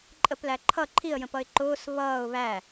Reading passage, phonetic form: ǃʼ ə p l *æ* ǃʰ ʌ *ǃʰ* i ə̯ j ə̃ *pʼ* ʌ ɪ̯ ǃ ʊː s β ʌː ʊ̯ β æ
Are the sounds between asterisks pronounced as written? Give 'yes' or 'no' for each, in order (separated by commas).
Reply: yes, yes, no